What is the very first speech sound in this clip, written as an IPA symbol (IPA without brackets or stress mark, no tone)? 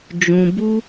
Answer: d͡ʒ